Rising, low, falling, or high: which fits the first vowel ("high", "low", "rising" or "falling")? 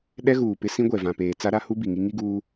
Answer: high